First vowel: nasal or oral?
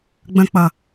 nasal